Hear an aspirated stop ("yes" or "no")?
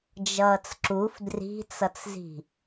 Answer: no